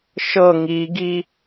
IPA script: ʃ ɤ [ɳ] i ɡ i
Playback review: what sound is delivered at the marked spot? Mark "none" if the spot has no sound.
ŋ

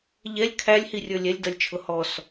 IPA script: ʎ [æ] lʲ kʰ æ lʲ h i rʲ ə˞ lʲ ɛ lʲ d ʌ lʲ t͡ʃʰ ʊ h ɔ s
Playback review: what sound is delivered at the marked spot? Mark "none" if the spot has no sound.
ɛ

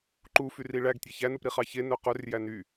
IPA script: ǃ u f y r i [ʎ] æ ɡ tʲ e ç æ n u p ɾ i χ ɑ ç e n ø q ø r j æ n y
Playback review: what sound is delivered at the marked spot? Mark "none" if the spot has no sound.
ɭ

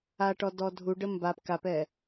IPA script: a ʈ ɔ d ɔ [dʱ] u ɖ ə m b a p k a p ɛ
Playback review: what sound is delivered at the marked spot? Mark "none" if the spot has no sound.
dʱ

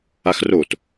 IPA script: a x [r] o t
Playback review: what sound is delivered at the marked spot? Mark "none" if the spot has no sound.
r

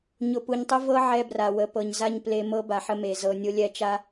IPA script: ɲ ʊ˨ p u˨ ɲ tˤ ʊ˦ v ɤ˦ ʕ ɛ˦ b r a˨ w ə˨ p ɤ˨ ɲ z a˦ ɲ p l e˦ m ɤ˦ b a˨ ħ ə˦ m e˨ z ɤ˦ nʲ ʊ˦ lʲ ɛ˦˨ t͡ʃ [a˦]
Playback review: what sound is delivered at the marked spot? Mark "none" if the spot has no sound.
a˦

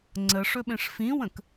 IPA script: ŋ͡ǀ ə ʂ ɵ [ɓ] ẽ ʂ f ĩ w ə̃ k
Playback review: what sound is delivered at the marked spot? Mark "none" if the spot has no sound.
ɓ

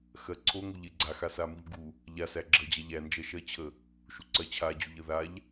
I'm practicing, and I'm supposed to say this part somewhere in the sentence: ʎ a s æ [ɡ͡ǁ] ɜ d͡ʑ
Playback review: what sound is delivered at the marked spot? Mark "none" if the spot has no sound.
ɡ͡ǁ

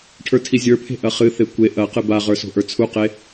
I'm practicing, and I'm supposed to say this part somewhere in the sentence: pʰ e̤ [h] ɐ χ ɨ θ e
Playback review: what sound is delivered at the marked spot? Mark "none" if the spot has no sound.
ʔ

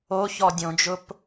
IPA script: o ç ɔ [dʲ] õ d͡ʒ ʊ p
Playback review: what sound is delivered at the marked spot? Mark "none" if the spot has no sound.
dʲ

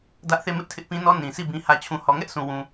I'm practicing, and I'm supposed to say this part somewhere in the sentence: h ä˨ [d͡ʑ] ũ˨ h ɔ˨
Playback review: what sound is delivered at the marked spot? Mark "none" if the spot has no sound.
t͡ɕʰ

